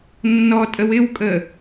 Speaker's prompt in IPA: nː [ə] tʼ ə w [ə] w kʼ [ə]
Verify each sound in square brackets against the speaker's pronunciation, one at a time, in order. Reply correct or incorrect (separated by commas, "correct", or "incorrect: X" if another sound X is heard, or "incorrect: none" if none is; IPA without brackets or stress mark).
incorrect: ɔ, incorrect: ɪ, correct